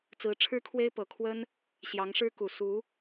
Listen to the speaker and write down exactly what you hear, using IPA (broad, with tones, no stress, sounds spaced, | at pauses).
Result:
t͡s ɹ̩˧˥ ʈ͡ʂʰ ɻ̩˥ kʰ w e˥ ɪ̯ p ɤ˨˩ kʰ w ə˥ n | ɕ j ɑ˧˥ ŋ ʂ ɻ̩˥ k u˨˩ s u˧˥